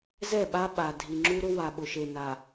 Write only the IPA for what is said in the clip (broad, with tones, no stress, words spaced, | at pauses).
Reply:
zɛ˦˨ɓa˦ ɓa˨ dʱi˨ ŋ͡ǁu˦ɾʊ˦ wa˨ ɓʊ˨ʃe˨ na˨